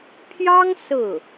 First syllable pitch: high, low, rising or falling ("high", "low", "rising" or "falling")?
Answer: high